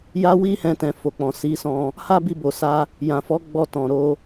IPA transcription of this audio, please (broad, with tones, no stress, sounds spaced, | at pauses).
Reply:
j a˦ w i˦ h ɛ̃˧ t ɛ̃˨ f o˨ k͡p ɔ̃˨ s i˨˦ s ɔ̃˧ | h a˦ b i˧ b o˨ s a˧ | j ã˨ f ɔ˨˦ ɡ͡b ɔ˧ t ɔ̃˨ ɾ o˨˦